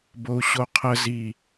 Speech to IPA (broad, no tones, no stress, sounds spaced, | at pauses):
b o u̯ ɕ o qʰ ə z i